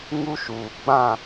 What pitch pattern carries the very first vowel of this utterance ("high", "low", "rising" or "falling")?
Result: high